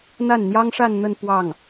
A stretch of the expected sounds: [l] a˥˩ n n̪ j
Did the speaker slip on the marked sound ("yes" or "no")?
yes